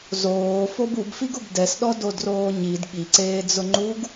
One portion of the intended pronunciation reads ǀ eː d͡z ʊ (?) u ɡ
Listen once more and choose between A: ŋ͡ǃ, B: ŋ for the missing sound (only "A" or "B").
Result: A